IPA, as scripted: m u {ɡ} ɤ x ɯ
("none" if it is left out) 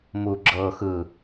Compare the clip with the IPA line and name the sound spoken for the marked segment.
ɡ͡ǁ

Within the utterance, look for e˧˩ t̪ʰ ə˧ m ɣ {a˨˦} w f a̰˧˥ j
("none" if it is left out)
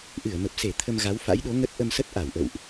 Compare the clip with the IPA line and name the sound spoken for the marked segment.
a˨˦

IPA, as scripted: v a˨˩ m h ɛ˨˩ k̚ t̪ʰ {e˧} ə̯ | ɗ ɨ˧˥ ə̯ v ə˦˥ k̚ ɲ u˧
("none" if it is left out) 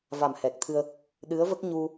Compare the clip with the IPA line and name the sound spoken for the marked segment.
ɨ˧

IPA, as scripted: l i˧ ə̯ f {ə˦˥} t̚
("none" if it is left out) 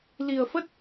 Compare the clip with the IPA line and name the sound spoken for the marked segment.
ə˦˥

